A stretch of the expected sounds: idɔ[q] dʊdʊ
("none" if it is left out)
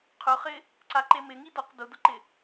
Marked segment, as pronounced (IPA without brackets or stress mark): q